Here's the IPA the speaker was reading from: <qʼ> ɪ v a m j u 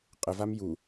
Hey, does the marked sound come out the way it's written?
yes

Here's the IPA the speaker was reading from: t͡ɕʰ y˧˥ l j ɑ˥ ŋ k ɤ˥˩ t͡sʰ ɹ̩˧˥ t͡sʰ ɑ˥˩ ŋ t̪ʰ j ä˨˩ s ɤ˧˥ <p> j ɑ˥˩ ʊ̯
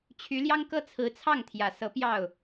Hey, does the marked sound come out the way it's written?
yes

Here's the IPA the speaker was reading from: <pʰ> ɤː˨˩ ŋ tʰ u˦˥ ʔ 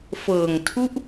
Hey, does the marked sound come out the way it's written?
no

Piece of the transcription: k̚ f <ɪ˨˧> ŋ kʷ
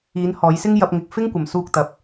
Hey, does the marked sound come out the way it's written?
no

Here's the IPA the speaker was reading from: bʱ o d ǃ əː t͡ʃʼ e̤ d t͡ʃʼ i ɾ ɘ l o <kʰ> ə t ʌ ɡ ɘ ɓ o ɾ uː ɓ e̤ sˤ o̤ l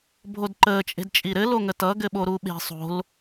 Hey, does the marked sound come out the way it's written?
no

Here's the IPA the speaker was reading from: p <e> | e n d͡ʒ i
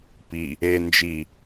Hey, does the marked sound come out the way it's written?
no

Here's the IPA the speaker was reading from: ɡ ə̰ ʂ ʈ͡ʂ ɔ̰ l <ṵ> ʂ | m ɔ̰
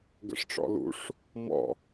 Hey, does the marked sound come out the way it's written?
yes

